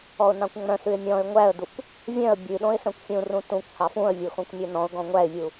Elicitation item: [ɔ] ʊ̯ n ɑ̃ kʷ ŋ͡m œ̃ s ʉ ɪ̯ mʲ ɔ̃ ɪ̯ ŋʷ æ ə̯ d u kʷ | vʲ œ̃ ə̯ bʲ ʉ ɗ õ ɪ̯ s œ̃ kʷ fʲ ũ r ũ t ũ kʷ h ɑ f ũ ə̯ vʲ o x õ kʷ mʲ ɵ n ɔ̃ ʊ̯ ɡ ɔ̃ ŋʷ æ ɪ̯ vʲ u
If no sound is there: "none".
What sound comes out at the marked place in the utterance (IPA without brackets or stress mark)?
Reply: ɔ